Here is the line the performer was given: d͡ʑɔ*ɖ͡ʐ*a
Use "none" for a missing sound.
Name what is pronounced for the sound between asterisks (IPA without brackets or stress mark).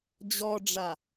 ɖ͡ʐ